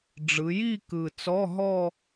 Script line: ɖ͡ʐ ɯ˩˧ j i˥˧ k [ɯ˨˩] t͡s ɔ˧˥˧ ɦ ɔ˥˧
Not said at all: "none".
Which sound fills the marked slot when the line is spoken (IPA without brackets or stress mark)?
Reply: ɯ˨˩